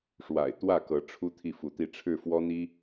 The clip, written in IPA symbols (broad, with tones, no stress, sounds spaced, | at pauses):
ʂ w a̰˨˩ ɪ̯ t̪ w ä˥˩ k ɤ˧˥ ʈ͡ʂʰ u˧˥ t̪ʰ i˥˩ f u˧˥ t̪ i˥˧ ʈ͡ʂʰ ɻ̩˥˩ f w ɔ˥ n̪ i˥